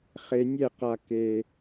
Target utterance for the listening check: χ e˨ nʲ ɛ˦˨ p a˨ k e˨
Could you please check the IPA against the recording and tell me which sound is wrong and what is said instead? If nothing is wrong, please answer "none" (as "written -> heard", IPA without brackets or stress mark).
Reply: p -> q